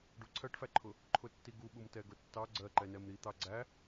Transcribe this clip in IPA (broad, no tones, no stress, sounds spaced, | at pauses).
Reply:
ɖ u ǀʰ ɜ ʈ f æ ǃʰ ʊ | ǃʰ ʊ tː i ɡ u ɓ u m t ɛ ɡ ʊ tː ɑ ɡ͡ǀ ɜ ǃ ɛ n ɛ m ɾ i t̪ ɑ ɡ͡ǀ æ